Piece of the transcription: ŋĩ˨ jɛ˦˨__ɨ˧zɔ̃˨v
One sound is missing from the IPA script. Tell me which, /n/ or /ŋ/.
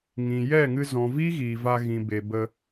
ŋ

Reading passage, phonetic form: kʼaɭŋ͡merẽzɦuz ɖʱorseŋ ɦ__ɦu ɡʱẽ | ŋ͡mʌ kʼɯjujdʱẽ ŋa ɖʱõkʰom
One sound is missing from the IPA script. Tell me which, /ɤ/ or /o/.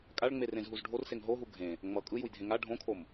o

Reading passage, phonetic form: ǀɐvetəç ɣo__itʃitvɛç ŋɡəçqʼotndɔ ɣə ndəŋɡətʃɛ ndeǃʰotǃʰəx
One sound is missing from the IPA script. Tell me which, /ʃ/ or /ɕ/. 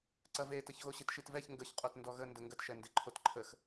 ɕ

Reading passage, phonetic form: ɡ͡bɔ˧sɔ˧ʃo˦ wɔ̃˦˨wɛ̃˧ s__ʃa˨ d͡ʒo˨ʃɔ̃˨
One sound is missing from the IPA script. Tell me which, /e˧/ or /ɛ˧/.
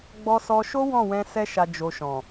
ɛ˧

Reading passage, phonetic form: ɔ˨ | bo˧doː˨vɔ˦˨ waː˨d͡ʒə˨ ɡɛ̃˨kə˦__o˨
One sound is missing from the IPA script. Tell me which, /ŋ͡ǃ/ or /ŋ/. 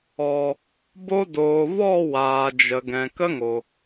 ŋ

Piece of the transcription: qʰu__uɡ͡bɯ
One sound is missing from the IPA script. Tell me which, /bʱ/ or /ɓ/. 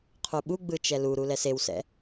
ɓ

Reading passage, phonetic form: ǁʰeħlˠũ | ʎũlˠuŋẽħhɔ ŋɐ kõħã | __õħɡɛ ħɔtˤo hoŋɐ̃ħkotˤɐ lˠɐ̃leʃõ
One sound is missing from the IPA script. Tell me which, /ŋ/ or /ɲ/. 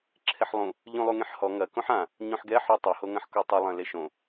ɲ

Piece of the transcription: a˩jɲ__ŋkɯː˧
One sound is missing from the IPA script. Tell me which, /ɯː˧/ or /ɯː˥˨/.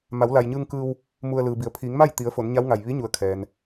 ɯː˧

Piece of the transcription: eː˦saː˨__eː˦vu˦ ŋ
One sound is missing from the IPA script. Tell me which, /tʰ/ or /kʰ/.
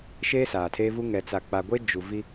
tʰ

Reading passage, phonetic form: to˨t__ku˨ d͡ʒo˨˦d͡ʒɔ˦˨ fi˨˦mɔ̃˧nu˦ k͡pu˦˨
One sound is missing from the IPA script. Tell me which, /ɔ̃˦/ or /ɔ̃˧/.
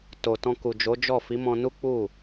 ɔ̃˧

